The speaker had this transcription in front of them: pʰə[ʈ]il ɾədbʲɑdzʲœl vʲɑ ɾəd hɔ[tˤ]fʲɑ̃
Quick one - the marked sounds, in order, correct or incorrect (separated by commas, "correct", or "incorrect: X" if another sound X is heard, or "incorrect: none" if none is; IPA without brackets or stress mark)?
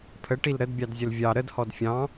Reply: correct, incorrect: d